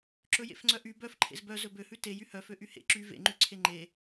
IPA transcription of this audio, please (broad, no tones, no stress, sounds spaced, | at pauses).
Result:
ǁ ɵ j ḛ f ŋ͡ǀ œ ʔ y b œ f ǃʰ ḛ z b œ z ɵ b ø h ʉ t e j y h œ f ø ʔ y h ḛ ǁ y v ḛ ŋ͡ǃ y ǀʰ e ŋ͡ǃ e